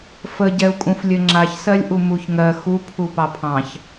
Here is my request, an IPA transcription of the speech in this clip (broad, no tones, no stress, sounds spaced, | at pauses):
f ə ɟ ɛ u̯ kʼ ũ f lʲ ɘ ŋ͡ǁ a ç s ɜ lʲ ʔ u m u ç ŋ ɜ x u pʰ u p ɑ pʰ ɑ̃ ç